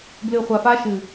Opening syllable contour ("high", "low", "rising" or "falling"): low